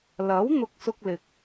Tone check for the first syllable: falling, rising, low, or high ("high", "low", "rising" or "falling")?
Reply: rising